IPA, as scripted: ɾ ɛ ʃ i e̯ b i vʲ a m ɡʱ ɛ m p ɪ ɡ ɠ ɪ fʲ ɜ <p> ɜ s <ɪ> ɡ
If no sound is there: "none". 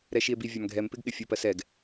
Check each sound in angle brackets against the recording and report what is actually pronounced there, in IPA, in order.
p, ɛ

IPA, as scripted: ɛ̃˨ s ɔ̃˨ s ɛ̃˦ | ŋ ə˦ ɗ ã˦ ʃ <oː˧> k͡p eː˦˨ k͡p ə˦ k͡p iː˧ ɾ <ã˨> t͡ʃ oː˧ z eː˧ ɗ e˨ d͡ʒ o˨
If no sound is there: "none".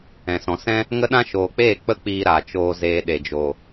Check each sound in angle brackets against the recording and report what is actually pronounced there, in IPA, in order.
oː˨, a˨

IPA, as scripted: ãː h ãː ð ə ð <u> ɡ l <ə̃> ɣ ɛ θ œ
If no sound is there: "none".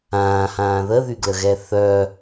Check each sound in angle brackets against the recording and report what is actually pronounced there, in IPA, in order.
y, ə

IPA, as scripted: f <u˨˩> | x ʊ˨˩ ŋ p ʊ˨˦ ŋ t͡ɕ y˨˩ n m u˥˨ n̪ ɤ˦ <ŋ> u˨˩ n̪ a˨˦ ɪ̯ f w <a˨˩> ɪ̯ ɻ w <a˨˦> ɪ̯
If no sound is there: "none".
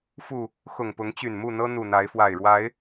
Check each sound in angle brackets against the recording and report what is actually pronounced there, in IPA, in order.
u˨˩, n̪, a˨˩, a˨˦

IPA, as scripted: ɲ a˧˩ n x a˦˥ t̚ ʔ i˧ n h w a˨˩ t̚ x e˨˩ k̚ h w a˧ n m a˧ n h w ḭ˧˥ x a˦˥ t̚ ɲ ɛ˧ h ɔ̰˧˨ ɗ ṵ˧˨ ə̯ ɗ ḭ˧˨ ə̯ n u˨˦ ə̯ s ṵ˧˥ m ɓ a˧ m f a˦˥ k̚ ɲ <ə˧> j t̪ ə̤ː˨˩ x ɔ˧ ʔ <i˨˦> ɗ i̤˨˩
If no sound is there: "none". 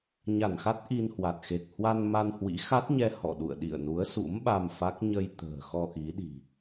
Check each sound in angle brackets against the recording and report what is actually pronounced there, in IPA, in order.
ə˧, i˨˦

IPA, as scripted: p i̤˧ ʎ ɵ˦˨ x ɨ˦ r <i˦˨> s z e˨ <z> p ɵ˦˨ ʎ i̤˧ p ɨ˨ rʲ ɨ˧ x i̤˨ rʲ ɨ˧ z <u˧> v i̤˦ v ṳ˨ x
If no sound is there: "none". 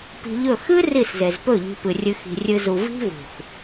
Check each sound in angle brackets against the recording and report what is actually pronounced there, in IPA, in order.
i˦˨, z, u˧

